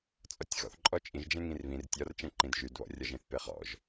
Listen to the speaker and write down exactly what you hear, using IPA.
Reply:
t͡sʼ ɒ tʲ x ɔ̰ θ ǃʼ ɔ t͡ʃʼ ĩ ʒ d͡ʒ ɛ̃ ŋ ĩ r β ĩ r tʲ ɒ r t͡ʃ ɛ̃ ǃ ĩ d ʒ y d β ɔ̰ rʲ ɒ ʒ ẽ θ p e χ ɔ̰ ʒ

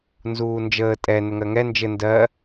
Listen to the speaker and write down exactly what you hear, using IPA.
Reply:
n z uː n d͡ʒ əː tʼ ɛ n ɘ ŋ ɜ ŋ ɛ n d͡ʒ ɘ n d ɜ

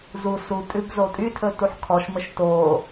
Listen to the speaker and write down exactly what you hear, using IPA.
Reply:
z u s u tʼ ʉ b z o tʼ y tʰ ɵ t u ħ kʰ ɔ ʃ m ə ʃ t o

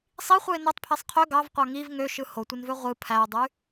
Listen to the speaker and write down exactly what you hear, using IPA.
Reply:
sˤ i χʷ ɯ ɪ̯ n o tˤ pʰ e sˤ qʰ ø ɡ ɑ v qʷ ɑ ŋ i v ŋ ø ʃ ɯ h o tʷ ɯ n v ø ʁʷ ɯ pʰ æ ʊ̯ dˤ y

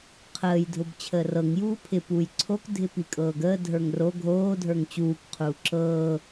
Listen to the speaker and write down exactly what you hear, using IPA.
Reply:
qʰ əː j dʱ ʊ b t͡ɕʰ əː r ɤ ŋ j uː pʰ ɪ p uː j ǀʰ o k dʱ ɪ p i kʼ ɤː ɡ əː dʱ ə˞ ŋ r o ɡʱ oː dʱ ə˞ ŋ t͡ɕ uː k qʰ uː ǁ ɤː

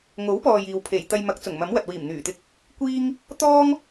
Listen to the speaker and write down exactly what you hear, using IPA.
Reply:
ŋ o˨˥ w p ɔː˨ j iː˨ w pʰ e˨˩ j t̪ ɐ˧ j m ɐ˨˥ k̚ t͡s ʊ˨˩ ŋ m ɐ˨˥ m w ɐ˨ t̚ w iː˨˩ m n̪ yː˨˩ t̪ ɪ˧ k̚ | kʷ iː˥ ŋ | t̪ ɔː˥ ŋ

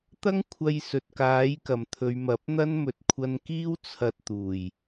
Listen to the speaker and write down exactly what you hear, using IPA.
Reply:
t̪ ɐ˥ ŋ kʷʰ ɐ˧ j s ɵ˨ t̚ k aː˨˥ j k ɐ˨ m t̪ʰ ɵ˨˧ ɥ m ɐ˨˥ p̚ n̪ ɐ˥ n m ɵ˨ t̚ kʷʰ ɐ˧ n k iː˥ w t͡sʰ ɐ˧ t̚ t̪ uː˨˩ j

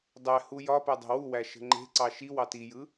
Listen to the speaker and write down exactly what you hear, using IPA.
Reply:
dˤ æ h u j ɒ p æ dˤ e̤ w u w æ ʃ ə̤ ŋ͡ǃ e̤ ǀ ɑ ʃ i w ɑ t i j ɯ

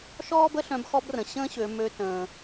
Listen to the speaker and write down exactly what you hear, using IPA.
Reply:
ʃ ɔː˥ b ə˥ ɬ œ̃˧˥ b x ɔ˥ b r ə̃˩ ɕ ə̃ː˥ ɕ ø˩˧ m ø˧˥ t ə̃ː˩

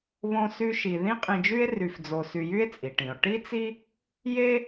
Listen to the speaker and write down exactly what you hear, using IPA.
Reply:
β õ˥ s y˥ ʃ i˧ ð ĩ˥ qʼ ĩ˧ d͡ʒ y˥ e̯ r y˧ f d͡z o˧ s y˧ j y˥ e̯ t͡sʼ i˩ ʈ ĩ˩ o̯ ʈ i˥ t͡s i˥ | j e˥

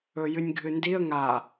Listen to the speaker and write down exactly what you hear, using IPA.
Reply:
ɵ j ɨ nʲ ɡʱ ɨ n d i ə̯ ŋ a

